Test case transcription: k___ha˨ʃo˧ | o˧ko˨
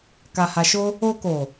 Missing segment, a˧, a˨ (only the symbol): a˨